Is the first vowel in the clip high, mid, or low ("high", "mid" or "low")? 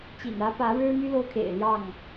high